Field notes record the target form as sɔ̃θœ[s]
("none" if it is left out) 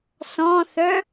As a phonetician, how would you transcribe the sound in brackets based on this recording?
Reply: none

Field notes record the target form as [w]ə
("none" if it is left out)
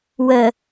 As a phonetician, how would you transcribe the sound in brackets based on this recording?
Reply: w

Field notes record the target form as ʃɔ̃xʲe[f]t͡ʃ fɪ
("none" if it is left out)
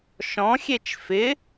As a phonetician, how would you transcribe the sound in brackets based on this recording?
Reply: none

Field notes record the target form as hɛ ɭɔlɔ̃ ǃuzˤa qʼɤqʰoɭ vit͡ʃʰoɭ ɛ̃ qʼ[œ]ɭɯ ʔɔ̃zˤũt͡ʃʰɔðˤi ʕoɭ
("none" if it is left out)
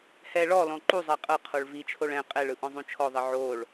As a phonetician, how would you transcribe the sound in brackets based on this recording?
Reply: ɛ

